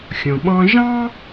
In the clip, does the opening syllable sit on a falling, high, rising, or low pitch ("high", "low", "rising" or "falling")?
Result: low